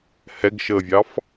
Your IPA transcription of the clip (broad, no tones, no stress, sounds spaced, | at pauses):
h ɛ ɡ ʃ əː vʲ ɑ f